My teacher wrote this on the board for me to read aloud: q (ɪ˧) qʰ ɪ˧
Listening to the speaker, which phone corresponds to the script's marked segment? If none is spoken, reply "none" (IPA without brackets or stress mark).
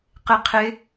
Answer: ɪ˧